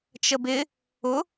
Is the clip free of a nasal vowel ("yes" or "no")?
yes